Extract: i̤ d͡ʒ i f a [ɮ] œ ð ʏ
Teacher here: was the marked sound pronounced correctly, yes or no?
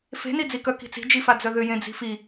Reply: no